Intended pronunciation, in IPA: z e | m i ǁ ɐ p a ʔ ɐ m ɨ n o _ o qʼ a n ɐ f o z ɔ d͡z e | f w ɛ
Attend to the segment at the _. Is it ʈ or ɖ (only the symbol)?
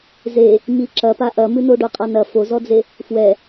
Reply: ɖ